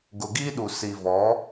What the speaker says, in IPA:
ɡ ʊ˨ ɡ i˦ ɗ u˨ s i˨ v ɔ˨˦

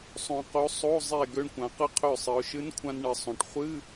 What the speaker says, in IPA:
sˤ õ˧ q o˧˥ sˤ o˧˥˧ zˤ e˧˩ ɡ ø˧ ɳ kʷ ã˩˧ q ɨ˧ qʰ ø˧˩ sˤ ɨ˩˧ ʊ̯ ʃ ɨ˧˥ n kʷʰ ã˧ n ɳ ɨ˩˧ sˤ õ˩˧ ʈ χʷ ɨ˧˥˧

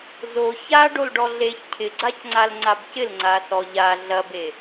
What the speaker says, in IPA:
z o ç a ɖ o l ɖ ɔ ɮ e ç cʰ ɪ ɡ͡ǀ a c ŋ͡ǀ a l ŋ͡ǀ a b c ɪ l ŋ͡ǀ a s ɔ ʎ a ɮ ɐ b e

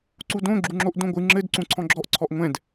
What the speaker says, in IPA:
ǀ u d õ ɡ͡ǁ u ŋ͡ǁ o ʔ d õ ɡʷ ɨ ŋ͡ǁ ɘ d ǀ ũ ǀʰ ɔ̃ ɡ͡ǁ ɔ ʔ ǀʰ ɔ ʔ ŋʷ ɛ̃ d

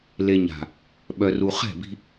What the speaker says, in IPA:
l e˨ ɲ a̤˨ | ɓ œ˨ r u˨ χ ɛ̤˦˨ b i̤˦

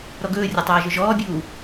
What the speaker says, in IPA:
ɾ ɔ ɡ ɵː rʲ ɒ tˤ aː ʒ ɵ ʒ ɔː bʲ uː

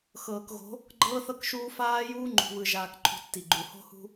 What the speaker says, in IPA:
x ɤː˨ k ɣ o̤˨˦ | ɡ͡ǃ ɤː˦ θ ɤ˦ k ʃ uː˦ f aː˦ j uː˦ ŋ͡ǃ ṳ˨ β ɯ˨ ʒ aː˨ k ǃʰ ṳ˨ tː i˨ ɡ͡ǃ u˨ h o̤˦ h ṳ˦

